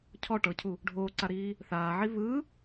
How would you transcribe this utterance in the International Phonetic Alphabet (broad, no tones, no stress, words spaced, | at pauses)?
cʰɔ ʈɤcʰu | ɖʱoːǀaɾiː | θaːʕi βɯ